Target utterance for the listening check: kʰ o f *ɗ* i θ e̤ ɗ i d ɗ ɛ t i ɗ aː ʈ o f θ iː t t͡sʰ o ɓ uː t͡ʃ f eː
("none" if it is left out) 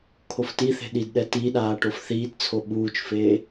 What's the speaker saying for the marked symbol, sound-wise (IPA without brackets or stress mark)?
t